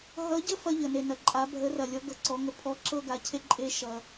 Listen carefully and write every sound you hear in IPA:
ɦ ʌ˧˥ ɟ ə˥ f ɐ˥ ʎ ə˨ n e˨ n ɐ˨ ǃʼ a˧˥ bʱ ə˧˥ r ɐ˨ lʲ ɔ˧˥ ɡ ʌ˨ ǀ ɔ˧˥ ŋ ə˧˥ pʰ ɔ˧˥ ǁ ɤ˥ ɡ a˧˥ cʰ e˥ ǃʼ e˥ ʃ ʌ˨

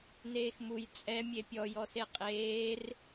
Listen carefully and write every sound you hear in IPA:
n eː x m u j t͡sʼ ɛ mʲ e pʲ ɔ j ɔ s e qʼ eː r

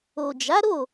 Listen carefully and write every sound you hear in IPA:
o˨ d͡ʒ a˨˦ ɾ o˦˨

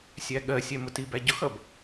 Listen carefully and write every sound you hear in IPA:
sʲ æ ɠ ɜ sʲ ɛ m ʊ t i b æ ɟ ʊ x ʌ b

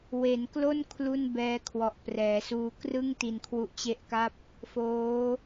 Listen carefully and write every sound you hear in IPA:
w e˩˦ n k l o˥˩ n kʰ l u˥˩ n b ɛː˦˥ kʰ w ɔ˨˩ ʔ p r ɛː˩˦ s uː˧ k r ɯ˥˩ ŋ t i˧ n kʰ w u˦˥ ʔ t͡ɕ e˦˥ ʔ k a˥˩ p̚ | f oː˦˥

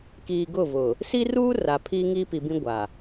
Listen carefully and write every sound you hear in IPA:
k iː˨ ɡ ʊ˦˨ v ʊ˨ | s i˦ r uː˦ r a˨ pʰ iː˦ ŋ iː˦ p i˨ b ĩ˦ ɡʷ a˨

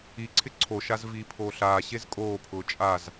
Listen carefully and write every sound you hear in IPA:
i ǀʰ ɪ ǀʰ o ʃ a z v iː pʰ oː ɬ aː ɕ e z kʼ oː pʰ ʊː t͡ʃʼ a z

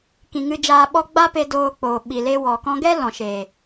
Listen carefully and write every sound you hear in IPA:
k ĩ˨ ŋ ɨ˧ d͡ʒ aː˧ ɓ ɔ˦ ɡ͡b a˦ p e˧ d oː˧ k͡p oː˨ ɓ i˨ l e˦ w ɔ˨ k ɔ̃˧ ɡ ɛ˦ l ɔ̃˨ ʃ e˨

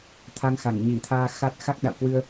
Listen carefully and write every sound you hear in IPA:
t̪ʰ a˧ ŋ x a˧˩ ŋ ɲ i˧˩ t̪ʰ aː˧ x a˦˥ t̚ x a˦˥ k̚ ɗ a̰˧˨ w k w ɨ˧ ə̯

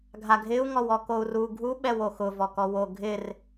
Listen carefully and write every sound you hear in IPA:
ɡʱ a ɡʱ ɪ u̯ ŋ ɔ w ɔ k o u̯ r u ɡʱ u ɓ ɛ w o x ʊ v ɔ k ɔ w o ɡʱ ɪ r

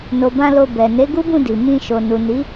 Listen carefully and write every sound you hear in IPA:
n o˨ b ã˧ l o˧ b ɛ˨ n e˨˦ ɡ u˦ b ũ˦˨ d i˨ m ĩ˧ ʃ o˨ n u˨ n i˨˦

